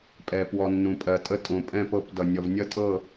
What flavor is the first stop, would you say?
ejective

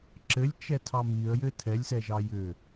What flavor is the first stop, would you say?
click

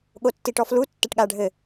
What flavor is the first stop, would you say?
implosive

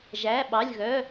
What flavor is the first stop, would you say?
implosive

